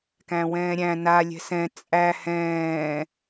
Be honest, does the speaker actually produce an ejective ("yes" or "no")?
yes